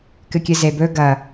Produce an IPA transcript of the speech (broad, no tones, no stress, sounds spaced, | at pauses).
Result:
k ɨ kʲ ɨ z e b ɵ ɡ ɐ